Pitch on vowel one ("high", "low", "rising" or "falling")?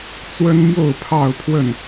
high